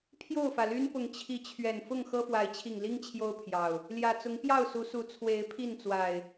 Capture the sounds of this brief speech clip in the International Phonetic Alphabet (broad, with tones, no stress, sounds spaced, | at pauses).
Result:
pʰ j o˥˨ ʊ̯ f ä˩ l y˦ n p ʊ˨˦ ŋ t͡ɕʰ i˨˦ t͡ɕʰ ɥ ɛ˨˩ n f ʊ˥˨ ŋ x ɤ˦ f w a˨˦ ɪ̯ t͡ɕʰ i˨˩ ŋ l i˦ ŋ t͡ɕʰ j o˦ ʊ̯ pʰ j ɑ˨˩ ʊ̯ | l j ä˨˩ t͡s ʊ˨˦ ŋ p j ɑ˥˨ ʊ̯ s u˨˦ s u˨˦ t͡sʰ w e˨˦ ɪ̯ pʰ i˥˨ n t͡s w a˨˩ ɪ̯